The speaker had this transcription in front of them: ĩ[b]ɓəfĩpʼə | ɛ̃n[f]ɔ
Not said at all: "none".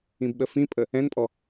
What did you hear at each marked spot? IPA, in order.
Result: b, pʼ

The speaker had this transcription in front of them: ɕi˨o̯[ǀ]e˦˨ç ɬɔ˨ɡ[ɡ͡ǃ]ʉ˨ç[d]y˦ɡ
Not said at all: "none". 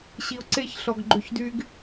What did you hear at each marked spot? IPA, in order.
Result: ǀ, ɡ͡ǃ, d

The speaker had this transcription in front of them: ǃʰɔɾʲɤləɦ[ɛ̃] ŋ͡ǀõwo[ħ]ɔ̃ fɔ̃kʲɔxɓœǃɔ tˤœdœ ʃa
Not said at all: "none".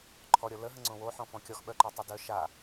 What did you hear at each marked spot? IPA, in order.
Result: ə̃, ħ

